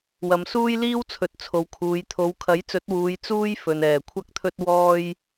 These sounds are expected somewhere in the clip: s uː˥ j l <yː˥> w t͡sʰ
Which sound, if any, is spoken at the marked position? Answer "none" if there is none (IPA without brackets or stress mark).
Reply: iː˥